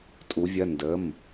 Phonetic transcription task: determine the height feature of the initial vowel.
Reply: high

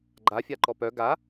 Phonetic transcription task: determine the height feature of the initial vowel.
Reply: low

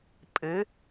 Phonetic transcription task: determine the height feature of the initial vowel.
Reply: high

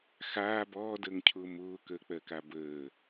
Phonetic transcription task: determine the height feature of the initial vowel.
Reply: low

